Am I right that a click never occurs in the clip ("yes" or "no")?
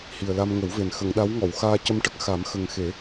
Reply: yes